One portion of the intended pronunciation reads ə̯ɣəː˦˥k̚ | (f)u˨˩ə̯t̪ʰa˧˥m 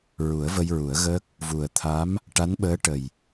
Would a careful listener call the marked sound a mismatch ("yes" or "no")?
yes